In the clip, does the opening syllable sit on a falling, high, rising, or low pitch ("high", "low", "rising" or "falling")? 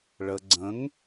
low